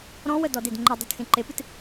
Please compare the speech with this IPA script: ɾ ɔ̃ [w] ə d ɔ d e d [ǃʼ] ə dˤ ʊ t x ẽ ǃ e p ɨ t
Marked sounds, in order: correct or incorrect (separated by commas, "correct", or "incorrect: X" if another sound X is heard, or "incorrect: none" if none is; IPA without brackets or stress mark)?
correct, incorrect: ŋ͡ǃ